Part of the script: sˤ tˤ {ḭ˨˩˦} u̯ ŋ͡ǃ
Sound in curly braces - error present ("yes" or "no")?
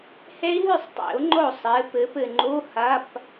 no